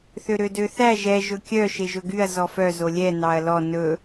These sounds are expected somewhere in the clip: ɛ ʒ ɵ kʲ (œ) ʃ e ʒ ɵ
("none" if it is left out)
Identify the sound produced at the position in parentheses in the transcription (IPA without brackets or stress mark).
œ